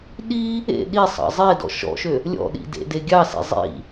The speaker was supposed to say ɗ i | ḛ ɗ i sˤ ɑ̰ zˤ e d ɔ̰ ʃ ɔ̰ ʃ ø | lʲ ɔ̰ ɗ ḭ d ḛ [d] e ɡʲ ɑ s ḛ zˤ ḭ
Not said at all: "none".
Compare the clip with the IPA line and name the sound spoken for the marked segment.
d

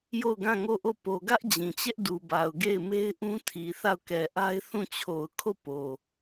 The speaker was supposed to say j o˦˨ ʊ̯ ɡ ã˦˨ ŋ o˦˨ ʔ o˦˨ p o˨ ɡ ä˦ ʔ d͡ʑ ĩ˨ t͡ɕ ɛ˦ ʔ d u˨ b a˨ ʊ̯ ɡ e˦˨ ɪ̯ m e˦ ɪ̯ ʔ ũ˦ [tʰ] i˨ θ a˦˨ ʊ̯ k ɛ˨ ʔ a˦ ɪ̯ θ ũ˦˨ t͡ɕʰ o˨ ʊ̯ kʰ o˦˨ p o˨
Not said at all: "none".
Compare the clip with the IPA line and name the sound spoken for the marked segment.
tʰ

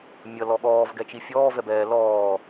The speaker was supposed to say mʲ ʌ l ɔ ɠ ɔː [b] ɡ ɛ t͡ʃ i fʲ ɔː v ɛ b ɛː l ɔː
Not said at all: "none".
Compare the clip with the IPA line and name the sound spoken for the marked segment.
v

